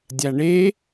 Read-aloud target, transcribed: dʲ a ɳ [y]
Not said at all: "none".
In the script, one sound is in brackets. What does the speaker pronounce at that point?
e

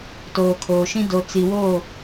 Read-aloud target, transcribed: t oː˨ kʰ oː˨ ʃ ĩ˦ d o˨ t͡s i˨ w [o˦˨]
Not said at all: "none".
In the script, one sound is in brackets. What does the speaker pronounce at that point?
o˦˨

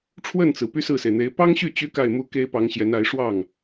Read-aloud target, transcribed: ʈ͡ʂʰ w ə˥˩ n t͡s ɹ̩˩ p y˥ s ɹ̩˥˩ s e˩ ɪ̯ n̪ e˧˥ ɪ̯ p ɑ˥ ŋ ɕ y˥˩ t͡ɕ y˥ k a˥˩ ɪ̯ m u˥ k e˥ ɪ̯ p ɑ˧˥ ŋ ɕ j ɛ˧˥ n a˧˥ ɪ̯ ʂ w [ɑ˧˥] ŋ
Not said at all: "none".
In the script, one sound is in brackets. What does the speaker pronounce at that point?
ɑ˥˩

